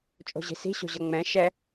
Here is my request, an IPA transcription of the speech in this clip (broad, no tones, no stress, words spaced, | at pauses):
t͡ʃʼo̤ʑi̤si̤ ɕo̤ʑʌŋ͡mɛ̃ ʃɛ